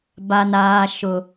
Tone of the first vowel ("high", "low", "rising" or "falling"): low